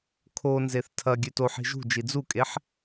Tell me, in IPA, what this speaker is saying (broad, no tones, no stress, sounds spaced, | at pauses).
kʰ o n z e θ tʰ ɐ ɡʲ ʉ t o ħ i̤ ʒ ṳ d͡ʒ i d͡z u kʼ e ħ